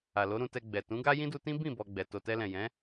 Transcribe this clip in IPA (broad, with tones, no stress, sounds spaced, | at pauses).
a˨ l o˨˦ ɾ ũ˧ t ɛ˧ ɡ͡b ɛ˨ t ũ˨˦ ɡ a˦ j ĩ˦ d u˧ t ĩ˦ b ĩ˦˨ b ɔ˧ ɡ͡b ɛ˨ t o˨ t ɛ˧ l ɛ̃˨ j ɛ̃˨˦